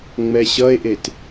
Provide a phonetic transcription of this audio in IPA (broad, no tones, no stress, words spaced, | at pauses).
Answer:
ŋ͡mɛɕʌe̯ʔet